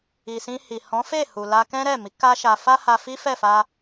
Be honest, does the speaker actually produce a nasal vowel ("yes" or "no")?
yes